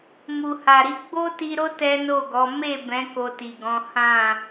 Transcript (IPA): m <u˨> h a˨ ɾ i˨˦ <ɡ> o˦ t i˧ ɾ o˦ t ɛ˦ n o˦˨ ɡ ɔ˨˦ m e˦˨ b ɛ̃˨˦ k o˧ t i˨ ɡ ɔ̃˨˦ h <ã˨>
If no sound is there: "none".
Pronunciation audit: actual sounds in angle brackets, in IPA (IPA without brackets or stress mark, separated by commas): u˨, ɡ͡b, ã˦˨